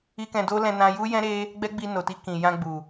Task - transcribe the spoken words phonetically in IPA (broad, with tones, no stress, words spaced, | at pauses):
i˦kɛ̃˧ do˦lɛ̃˧nã˧ju˦ jɛ̃˦ɾe˦ | ɡ͡bɛ˦ɡ͡bi˧ no˨ti˧kĩ˨jã˧ ɡ͡bu˨